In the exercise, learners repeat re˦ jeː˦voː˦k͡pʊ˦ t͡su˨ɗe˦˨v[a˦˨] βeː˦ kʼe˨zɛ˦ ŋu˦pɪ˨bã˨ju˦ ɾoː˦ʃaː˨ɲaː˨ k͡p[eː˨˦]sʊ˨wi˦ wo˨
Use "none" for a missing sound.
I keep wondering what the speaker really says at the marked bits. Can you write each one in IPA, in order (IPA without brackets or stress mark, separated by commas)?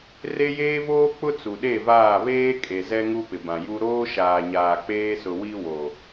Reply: aː˦˨, eː˦